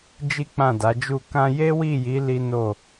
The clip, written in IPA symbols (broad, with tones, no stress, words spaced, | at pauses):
d͡ʒi˦k͡pã˦˨da˨˦d͡ʒu˦˨ kã˧ je˦wi˦˨ji˨˦ li˦no˦˨